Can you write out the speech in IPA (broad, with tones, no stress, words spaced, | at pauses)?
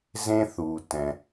zẽ˥ θu˩ tɛ̃˩